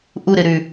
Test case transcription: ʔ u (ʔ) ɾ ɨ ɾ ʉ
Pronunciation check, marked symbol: incorrect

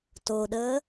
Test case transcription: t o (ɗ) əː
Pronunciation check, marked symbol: correct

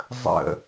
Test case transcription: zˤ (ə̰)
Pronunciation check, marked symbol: correct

